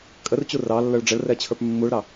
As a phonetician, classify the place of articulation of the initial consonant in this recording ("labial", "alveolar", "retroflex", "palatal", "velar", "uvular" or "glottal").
velar